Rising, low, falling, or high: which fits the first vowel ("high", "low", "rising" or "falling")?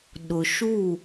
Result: low